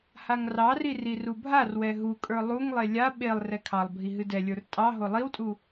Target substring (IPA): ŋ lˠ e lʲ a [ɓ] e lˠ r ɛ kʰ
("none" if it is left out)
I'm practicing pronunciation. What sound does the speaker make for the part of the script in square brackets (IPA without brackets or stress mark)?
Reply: ɓ